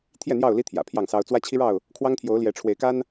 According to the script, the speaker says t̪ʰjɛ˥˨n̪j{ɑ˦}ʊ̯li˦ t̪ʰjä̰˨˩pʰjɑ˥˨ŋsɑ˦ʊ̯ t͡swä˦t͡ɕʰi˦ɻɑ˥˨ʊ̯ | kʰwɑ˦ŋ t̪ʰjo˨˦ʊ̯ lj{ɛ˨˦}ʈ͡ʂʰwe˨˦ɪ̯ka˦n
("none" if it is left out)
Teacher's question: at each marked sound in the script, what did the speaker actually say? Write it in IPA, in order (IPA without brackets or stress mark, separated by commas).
ɑ˥˨, ɛ˨˦